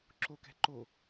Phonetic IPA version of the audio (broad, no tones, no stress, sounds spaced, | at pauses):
ǁ o k ɛ̤ ǃ o